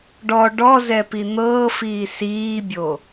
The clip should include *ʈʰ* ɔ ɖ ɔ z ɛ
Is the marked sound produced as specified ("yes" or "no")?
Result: no